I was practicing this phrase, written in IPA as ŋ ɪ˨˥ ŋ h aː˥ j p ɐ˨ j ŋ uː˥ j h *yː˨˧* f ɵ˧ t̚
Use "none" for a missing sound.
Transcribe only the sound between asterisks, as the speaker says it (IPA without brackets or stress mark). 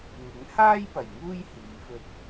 iː˨˧